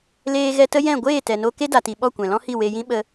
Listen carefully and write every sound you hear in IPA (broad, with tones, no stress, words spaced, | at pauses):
leː˧ɣɛ˧tə˦jɛ̃˦˨ ɡʷeː˦˨tɛ˨no˧ ke˦da˨ti˨ ɓɔ˦˨kʷɛ̃˨lɔ̃˦hi˦˨ we˧jĩ˦ ɓə˧